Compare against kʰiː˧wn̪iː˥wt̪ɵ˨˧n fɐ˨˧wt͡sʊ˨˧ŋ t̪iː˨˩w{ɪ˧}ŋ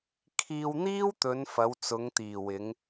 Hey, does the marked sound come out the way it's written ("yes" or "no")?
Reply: no